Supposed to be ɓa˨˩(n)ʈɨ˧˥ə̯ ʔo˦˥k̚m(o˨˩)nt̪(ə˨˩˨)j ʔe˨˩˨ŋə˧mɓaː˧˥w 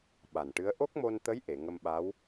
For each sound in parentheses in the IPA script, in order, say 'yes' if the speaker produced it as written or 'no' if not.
yes, no, no

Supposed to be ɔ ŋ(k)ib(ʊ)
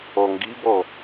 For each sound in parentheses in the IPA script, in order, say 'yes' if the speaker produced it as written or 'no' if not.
no, no

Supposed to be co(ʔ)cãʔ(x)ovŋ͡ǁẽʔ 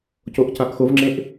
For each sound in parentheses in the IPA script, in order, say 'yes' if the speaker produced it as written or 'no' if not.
yes, yes

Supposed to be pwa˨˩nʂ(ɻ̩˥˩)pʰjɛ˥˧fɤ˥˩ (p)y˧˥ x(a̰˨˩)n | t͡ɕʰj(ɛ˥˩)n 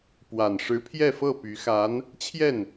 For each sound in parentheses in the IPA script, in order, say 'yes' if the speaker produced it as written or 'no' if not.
no, yes, no, yes

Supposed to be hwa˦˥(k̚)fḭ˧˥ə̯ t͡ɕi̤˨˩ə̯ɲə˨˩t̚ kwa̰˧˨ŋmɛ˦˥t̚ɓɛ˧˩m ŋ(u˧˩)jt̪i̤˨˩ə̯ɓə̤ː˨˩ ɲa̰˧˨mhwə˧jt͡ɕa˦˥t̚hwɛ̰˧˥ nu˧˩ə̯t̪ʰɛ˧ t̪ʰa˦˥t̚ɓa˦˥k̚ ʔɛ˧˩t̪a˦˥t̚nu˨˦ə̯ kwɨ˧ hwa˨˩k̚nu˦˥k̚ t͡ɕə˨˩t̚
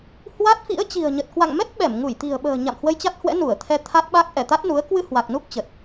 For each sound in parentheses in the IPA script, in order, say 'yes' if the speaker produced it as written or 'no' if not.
no, yes

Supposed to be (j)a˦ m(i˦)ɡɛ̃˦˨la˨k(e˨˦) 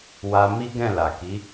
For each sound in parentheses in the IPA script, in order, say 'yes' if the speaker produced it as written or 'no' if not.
no, yes, no

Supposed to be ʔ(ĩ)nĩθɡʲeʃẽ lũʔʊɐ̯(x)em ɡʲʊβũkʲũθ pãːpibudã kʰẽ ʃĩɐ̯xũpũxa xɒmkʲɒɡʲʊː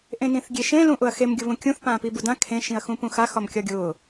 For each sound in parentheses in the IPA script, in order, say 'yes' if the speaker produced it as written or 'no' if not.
no, yes

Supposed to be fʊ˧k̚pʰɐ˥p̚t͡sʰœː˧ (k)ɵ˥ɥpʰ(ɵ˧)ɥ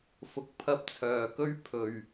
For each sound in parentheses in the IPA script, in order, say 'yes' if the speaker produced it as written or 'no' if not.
yes, yes

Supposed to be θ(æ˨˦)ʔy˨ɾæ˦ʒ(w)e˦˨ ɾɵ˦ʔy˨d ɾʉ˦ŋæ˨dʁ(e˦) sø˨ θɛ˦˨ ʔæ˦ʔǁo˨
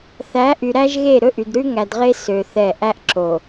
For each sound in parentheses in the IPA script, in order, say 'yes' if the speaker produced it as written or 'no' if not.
yes, no, yes

